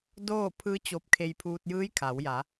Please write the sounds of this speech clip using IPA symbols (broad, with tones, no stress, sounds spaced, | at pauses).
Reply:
d oː˥˨ pʰ ɯː˧˥ t͡ɕ o˧ p̚ kʰ e˧ j pʰ uː˧ t̚ j ɯː˧˥ j kʰ a˩˧ w j a˩˧